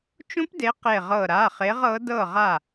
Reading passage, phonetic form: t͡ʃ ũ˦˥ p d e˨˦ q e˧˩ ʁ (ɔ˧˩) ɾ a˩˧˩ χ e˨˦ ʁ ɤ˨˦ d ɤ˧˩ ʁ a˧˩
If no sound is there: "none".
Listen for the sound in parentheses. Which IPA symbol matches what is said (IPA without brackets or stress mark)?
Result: ɤ˧˩